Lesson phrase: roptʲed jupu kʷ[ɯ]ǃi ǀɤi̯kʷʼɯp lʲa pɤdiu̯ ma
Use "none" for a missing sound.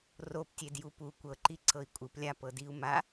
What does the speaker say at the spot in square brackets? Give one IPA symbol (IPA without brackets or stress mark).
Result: ɤ